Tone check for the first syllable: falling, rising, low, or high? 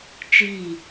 falling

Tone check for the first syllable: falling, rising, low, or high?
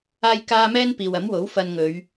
high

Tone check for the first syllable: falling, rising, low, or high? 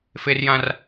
high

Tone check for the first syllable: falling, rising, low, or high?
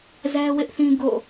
high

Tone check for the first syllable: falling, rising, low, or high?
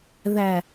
low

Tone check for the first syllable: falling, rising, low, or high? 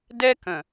high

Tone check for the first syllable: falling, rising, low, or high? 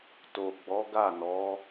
low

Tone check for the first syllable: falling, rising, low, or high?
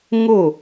falling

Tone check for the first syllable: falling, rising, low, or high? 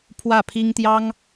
falling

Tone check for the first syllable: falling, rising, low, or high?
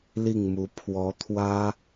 falling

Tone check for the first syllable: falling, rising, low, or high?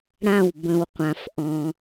falling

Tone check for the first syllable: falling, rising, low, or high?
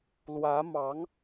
rising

